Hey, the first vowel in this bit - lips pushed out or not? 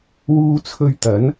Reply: yes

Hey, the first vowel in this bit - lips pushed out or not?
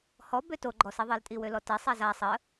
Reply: yes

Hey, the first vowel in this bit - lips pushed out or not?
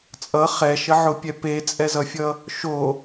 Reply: no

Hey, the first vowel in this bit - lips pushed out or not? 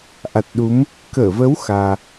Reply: no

